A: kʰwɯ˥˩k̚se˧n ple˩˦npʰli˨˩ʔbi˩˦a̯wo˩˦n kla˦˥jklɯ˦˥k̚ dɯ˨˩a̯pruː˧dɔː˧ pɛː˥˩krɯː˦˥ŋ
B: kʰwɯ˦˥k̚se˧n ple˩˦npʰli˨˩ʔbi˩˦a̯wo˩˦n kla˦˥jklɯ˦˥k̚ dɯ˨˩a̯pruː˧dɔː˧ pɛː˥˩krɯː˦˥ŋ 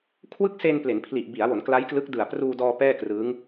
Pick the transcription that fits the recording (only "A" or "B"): A